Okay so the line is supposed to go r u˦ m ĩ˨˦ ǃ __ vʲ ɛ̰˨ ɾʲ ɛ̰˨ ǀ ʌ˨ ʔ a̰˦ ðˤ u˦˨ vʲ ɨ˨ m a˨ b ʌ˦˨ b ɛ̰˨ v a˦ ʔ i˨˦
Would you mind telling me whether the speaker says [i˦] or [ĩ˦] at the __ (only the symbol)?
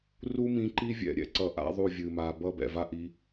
i˦